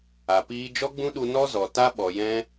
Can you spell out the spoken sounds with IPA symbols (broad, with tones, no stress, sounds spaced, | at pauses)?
a˨ p iː˧ d͡ʒ ɔ˦ ɡ͡b ũ˦ ɗ u˧ n ɔ˦ z ɔ˨ t a˦ ɓ ɔ˨ j ɛ̃˦